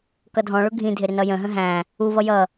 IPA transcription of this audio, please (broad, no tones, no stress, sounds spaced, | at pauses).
k ʌ dʱ ɔ̃ ɭ ʊ ɡʱ ĩ dʱ ɪ ɾ ɪ n ʌ j ə̃ ɦ ə̃ ɦ æ̃ | u v ʌ j ʌ